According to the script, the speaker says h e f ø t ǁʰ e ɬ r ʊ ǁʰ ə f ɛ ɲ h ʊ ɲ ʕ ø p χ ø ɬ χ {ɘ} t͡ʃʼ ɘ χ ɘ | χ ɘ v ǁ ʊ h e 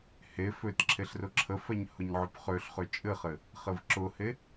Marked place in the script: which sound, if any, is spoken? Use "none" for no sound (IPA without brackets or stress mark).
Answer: ø